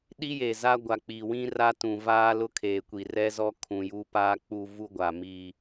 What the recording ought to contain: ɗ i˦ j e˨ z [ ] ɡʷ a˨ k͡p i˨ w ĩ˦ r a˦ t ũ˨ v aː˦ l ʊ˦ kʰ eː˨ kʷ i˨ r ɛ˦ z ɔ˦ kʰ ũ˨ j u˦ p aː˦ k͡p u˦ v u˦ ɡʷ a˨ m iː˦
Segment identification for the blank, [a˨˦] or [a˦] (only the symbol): a˦